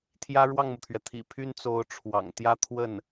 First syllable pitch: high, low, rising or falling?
high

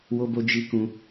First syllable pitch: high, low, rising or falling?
high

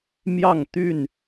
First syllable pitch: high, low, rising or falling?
falling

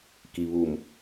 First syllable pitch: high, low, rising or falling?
low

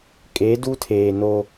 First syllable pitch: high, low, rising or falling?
rising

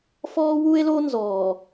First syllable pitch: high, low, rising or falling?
high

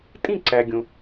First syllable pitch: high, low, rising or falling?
falling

